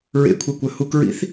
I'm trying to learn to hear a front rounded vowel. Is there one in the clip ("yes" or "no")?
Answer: yes